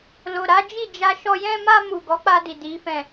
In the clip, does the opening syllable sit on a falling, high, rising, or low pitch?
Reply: low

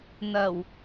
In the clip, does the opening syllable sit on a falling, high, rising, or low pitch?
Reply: low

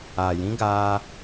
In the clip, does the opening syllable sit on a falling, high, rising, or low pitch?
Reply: low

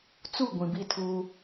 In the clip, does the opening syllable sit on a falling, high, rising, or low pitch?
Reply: falling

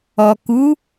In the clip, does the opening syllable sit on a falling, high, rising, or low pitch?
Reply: low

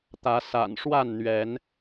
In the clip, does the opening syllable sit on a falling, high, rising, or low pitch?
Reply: rising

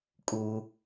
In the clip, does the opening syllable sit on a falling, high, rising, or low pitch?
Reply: high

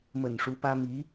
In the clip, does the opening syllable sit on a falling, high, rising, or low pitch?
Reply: low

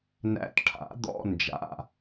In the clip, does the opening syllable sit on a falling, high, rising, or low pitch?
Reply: rising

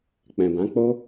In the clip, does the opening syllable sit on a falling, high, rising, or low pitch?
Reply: low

